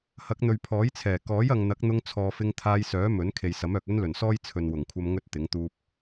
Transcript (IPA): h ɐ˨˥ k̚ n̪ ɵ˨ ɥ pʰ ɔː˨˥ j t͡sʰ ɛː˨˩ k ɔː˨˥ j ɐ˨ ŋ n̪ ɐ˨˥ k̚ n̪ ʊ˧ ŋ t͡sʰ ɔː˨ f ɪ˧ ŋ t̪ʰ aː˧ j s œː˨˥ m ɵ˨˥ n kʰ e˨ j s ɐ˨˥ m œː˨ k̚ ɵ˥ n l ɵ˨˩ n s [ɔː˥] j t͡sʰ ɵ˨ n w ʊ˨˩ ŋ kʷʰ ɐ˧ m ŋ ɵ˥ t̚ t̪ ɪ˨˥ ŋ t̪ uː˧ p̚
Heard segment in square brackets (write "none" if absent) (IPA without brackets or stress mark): ɔː˥